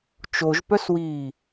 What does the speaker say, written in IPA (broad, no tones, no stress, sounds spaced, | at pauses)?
t͡ʃ o ʒ p œ s w iː